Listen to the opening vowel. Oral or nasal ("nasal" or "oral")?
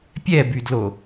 oral